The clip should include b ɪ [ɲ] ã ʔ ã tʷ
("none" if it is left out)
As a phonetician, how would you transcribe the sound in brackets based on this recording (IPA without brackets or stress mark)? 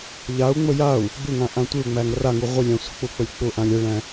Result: ŋ